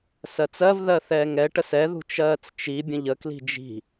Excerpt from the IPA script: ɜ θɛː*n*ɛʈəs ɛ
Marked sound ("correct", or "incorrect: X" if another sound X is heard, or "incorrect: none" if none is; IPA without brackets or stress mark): incorrect: ŋ